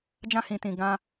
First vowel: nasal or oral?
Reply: nasal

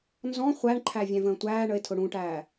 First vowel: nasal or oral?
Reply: nasal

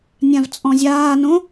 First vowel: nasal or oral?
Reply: nasal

